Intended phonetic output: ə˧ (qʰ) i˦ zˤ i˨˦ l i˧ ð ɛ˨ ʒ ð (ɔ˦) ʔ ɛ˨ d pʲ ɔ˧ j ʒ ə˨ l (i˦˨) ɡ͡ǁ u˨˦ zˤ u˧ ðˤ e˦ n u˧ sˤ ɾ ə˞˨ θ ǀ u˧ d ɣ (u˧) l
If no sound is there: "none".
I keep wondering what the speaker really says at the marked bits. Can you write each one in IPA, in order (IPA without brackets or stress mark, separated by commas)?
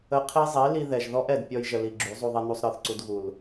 qʰ, ɔ˦, i˨, u˨